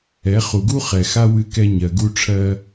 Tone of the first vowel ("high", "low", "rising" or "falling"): rising